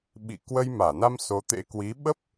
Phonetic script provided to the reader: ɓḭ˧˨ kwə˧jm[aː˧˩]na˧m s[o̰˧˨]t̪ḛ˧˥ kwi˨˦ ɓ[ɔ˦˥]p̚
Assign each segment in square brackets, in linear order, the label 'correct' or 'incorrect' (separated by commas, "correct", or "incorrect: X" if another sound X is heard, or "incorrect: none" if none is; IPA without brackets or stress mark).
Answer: correct, incorrect: o˨˦, incorrect: ə˦˥